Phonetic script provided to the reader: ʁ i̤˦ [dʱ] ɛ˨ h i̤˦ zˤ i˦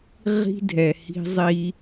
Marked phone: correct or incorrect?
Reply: correct